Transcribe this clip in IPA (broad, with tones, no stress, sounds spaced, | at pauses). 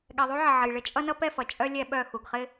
ɠ ɛ˨ ðˤ u˦ ʕ ɪ˨ ʕ ə˨ j ɭ ɪ˦ t͡ʃʼ ʌ˦ n ʌ˦ p ɛ˦˨ f ʌ˨ t͡ʃʼ œ˦ lʲ ɛ˦ ɓ œ˦˨ x u˨ ɡ χ ɪ˦